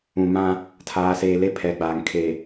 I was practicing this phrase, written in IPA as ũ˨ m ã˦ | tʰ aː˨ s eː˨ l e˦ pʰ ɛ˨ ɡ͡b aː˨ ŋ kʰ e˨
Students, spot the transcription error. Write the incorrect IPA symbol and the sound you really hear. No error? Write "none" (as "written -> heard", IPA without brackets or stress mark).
none